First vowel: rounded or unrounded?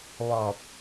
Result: rounded